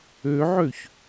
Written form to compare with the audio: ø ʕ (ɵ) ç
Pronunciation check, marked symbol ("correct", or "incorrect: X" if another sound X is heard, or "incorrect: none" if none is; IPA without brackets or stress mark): incorrect: ø